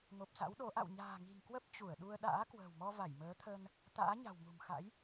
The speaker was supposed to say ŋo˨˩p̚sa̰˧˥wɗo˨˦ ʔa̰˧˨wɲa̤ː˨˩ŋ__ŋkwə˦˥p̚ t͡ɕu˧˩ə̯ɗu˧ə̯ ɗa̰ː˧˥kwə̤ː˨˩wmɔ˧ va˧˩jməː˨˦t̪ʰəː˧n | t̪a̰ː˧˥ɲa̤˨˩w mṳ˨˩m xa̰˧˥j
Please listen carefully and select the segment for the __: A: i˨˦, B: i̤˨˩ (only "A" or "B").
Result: B